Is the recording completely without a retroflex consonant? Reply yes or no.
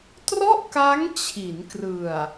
yes